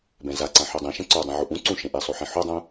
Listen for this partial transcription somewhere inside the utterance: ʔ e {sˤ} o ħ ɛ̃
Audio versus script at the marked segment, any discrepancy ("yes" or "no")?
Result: no